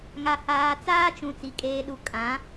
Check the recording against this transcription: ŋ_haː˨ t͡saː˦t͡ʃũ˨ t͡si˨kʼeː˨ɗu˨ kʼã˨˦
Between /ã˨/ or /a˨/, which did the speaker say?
a˨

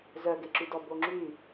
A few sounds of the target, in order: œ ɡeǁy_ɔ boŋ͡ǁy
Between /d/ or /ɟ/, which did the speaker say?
d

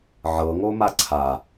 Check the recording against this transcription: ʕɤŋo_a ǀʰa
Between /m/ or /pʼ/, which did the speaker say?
m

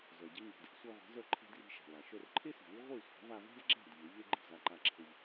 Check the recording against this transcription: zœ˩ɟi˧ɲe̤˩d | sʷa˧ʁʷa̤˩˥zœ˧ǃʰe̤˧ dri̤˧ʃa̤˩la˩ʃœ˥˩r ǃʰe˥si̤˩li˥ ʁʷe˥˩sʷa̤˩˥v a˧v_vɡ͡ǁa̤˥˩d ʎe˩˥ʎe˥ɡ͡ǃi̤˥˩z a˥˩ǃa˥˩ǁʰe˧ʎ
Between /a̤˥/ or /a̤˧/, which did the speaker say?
a̤˥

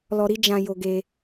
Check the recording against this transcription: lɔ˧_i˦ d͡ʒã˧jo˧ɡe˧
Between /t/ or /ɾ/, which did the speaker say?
ɾ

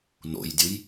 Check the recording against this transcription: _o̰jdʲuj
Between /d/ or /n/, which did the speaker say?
n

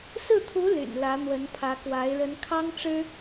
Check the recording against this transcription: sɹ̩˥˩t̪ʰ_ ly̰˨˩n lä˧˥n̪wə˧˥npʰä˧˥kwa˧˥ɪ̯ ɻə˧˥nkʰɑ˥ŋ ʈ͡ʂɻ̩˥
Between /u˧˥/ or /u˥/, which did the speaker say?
u˧˥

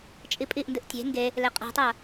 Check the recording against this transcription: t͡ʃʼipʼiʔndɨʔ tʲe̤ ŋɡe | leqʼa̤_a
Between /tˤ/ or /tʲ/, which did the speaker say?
tˤ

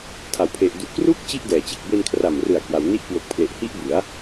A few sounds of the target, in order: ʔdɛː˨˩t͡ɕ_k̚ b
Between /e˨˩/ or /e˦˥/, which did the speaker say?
e˨˩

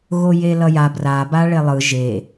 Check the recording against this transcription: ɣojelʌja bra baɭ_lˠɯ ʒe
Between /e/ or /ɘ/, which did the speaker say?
e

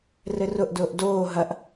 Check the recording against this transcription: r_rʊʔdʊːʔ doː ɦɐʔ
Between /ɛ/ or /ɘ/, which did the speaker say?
ɘ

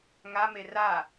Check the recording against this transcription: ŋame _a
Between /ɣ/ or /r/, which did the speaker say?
r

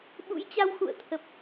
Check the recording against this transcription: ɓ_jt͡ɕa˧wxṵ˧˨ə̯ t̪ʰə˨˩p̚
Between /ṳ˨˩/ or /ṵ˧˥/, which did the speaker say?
ṵ˧˥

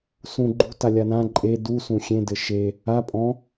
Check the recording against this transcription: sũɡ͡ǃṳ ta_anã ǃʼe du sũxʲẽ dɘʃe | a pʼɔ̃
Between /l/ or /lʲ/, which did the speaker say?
lʲ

